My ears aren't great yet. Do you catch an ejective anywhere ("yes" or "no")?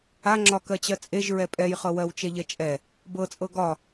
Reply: yes